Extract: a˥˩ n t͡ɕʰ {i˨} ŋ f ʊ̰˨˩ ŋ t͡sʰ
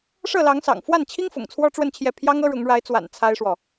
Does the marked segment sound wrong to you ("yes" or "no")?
yes